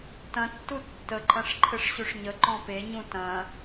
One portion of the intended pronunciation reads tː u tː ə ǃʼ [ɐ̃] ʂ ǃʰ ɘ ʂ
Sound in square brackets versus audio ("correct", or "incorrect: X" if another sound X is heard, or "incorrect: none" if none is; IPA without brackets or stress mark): correct